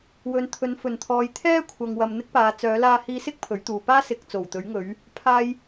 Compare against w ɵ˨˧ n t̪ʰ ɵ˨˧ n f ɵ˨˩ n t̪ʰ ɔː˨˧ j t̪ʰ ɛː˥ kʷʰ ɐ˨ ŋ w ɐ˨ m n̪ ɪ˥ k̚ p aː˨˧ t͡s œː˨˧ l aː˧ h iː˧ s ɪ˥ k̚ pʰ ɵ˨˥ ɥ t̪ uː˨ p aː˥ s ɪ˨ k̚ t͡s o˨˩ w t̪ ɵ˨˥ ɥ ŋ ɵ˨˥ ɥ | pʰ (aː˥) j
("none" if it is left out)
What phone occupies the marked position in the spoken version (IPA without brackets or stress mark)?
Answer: aː˥